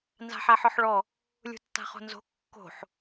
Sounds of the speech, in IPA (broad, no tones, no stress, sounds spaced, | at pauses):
n z a̤ ħ a ħ ɔ ħ ɭ ɔ | lʲ ṳ tː a̤ χ o̤ n z o̤ kː o̤ ħ